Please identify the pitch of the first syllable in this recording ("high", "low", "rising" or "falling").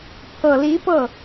low